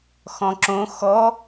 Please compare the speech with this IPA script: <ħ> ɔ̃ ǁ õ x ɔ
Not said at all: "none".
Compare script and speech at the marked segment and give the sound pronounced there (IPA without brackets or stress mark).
x